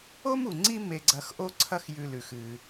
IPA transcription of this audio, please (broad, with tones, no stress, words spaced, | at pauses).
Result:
o˥mu˩ŋ͡ǀi˦ me˨ɡ͡ǀɐ˨x ʔo˥ǀʰɐ˥xjʉ˨lʉ˩x ɨ˩